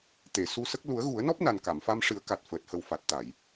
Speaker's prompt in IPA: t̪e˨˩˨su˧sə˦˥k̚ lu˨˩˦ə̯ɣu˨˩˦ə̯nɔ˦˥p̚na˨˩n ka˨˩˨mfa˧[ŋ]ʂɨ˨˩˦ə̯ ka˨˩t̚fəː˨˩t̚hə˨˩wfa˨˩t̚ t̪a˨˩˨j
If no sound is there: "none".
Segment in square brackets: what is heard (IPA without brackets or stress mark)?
m